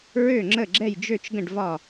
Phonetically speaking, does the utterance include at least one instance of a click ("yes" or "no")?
yes